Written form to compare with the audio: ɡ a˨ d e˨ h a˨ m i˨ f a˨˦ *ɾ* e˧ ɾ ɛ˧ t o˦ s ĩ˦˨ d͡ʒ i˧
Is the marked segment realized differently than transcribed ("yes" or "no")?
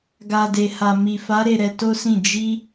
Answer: no